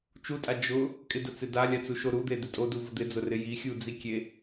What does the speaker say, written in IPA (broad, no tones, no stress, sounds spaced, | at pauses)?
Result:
t͡ʃ u tʼ a d͡ʒ ʊ | kʼ ɪ d ʊ t͡s ɪ d a lʲ a t͡s u ʃ o ɾ u d̪ e d̪ ɪ tʼ o d u v ʊ d̪ ɪ d͡z ʊ r ɪ j i xʲ u d͡z i kʲ e